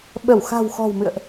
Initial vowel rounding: unrounded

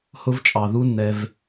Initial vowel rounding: rounded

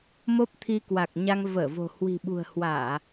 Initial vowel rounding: rounded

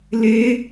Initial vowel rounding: unrounded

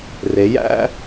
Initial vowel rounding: unrounded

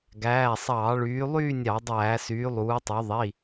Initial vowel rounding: unrounded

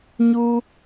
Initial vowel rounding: rounded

